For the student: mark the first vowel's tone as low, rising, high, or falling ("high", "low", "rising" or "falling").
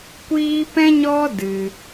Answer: high